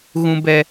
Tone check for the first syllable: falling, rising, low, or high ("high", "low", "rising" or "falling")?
high